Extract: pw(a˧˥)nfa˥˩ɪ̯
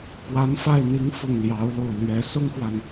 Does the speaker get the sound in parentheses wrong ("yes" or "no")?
no